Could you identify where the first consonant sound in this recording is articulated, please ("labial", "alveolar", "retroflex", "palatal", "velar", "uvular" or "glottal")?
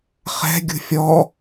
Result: uvular